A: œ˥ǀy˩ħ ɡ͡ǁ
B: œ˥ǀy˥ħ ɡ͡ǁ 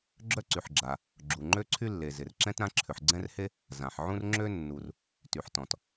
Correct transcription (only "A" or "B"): A